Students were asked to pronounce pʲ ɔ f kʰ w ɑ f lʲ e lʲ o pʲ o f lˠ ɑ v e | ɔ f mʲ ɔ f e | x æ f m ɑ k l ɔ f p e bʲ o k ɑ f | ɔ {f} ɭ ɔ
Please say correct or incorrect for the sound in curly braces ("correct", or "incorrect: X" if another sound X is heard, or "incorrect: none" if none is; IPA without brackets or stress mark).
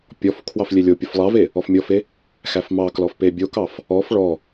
correct